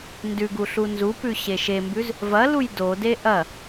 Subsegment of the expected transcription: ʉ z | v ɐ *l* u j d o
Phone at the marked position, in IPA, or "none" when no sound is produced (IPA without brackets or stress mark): l